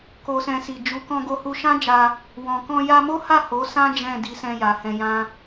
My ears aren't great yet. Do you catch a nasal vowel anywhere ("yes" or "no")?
yes